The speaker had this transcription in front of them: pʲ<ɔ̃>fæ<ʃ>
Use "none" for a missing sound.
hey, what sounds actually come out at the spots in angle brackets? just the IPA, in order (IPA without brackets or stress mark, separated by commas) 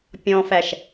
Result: ɔ̃, ʃ